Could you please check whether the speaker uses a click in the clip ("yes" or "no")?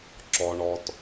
yes